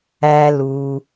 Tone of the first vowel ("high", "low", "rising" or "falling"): low